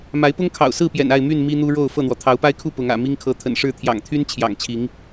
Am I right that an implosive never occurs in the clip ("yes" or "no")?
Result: yes